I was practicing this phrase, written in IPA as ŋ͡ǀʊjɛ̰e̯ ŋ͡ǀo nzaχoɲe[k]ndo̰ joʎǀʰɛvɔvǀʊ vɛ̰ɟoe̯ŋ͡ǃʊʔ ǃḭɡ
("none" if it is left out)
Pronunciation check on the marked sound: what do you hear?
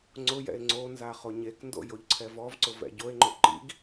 k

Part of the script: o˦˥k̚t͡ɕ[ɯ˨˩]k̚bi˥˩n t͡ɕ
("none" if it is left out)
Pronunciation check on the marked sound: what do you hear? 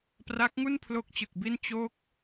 ɯ˨˩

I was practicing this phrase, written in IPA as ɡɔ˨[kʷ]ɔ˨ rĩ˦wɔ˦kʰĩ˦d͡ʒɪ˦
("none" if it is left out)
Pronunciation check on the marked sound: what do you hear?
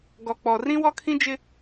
k͡p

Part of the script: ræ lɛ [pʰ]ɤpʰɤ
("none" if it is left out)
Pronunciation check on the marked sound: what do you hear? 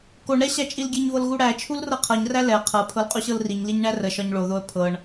qʰ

